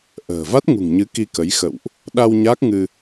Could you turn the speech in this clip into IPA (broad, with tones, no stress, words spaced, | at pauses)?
ʔə̤ː˨˩ va˦˥t̚ŋṳ˨˩ŋɲɨ˨˦ ki˧kə˨˦jxə̰˧˨wʔ | ɗa˧w ɲaː˦˥k̚ŋɨ˧